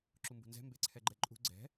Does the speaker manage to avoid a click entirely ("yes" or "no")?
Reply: no